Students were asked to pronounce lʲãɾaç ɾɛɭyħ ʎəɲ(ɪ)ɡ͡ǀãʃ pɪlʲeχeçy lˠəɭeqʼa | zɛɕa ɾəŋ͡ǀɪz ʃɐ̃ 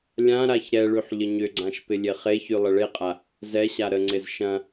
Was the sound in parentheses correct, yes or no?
no